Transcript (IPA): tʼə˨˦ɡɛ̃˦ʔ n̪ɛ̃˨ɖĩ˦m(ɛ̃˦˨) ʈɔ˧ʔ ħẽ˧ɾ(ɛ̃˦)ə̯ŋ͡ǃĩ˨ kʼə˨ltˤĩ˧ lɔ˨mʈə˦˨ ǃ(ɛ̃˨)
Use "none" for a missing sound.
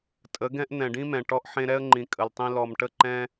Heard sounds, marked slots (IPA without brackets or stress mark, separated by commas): ɛ̃˨, ɛ˦, ɛ̃˦